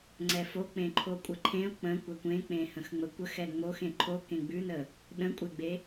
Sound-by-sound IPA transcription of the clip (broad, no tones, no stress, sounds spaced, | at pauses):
ŋ͡ǀ ɛ f o k͡p ẽ ǃʰ o kʷʼ ə ǃʰ ẽ ʊ̯ k͡p ə̃ kʷ ɛ kʷ ẽ k͡p ẽ h ə̃ x ŋ͡m ə kʷ ə x ɛ ŋ͡m o x ẽ ǃʰ o k ẽ ɡ͡b ʉ n ə | ɗ ə̃ kʷʼ e ɡ͡b e